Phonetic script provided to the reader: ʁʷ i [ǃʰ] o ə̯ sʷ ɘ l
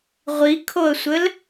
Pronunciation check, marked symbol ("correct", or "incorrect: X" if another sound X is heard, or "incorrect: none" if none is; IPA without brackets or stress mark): incorrect: kʰ